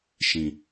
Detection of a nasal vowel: present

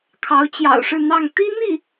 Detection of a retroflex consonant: present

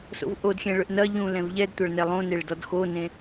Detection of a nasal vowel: present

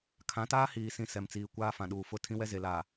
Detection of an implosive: present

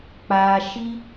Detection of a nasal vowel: absent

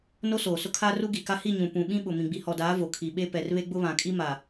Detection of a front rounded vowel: absent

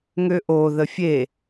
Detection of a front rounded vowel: present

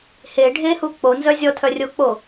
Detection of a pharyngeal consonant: absent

